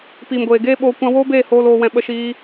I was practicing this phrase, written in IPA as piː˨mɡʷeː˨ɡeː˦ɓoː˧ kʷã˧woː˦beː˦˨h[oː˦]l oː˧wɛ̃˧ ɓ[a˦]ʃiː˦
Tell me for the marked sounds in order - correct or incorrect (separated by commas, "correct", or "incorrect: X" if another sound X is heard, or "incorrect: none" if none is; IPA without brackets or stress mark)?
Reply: incorrect: oː˧, incorrect: ə˦